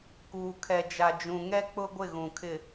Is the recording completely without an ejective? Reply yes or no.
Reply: yes